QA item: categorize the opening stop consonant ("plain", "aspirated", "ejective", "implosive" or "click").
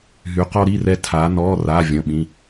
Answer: plain